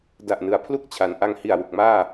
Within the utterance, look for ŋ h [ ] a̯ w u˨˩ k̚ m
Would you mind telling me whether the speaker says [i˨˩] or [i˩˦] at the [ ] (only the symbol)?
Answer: i˨˩